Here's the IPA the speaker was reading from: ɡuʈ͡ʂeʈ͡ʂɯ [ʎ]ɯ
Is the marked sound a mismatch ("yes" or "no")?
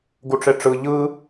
no